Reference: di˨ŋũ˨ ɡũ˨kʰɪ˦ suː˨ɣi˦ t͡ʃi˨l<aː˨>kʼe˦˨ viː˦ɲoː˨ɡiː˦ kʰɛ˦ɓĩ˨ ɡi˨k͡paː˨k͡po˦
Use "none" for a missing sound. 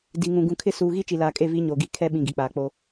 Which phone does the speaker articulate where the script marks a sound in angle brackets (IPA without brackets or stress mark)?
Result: aː˨